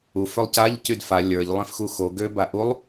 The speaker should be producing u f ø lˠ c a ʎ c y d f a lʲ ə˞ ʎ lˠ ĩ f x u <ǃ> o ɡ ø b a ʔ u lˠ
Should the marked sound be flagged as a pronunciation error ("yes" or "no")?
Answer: yes